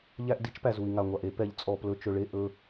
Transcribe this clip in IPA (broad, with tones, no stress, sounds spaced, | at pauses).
ʎ æ˦ ʔ d i˦ t͡ʃ p æ˨ z u˨ i̯ ŋ a˨ ŋʷ a˨ ʔ e˦ p ɛ˨ ʎ t͡sʼ ɔ˨ p l ɵ˨ t͡ʃ ɵ˨ ɭ e˦˨ ʔ ɵ˦